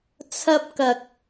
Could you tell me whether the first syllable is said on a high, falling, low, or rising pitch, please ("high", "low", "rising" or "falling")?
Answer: high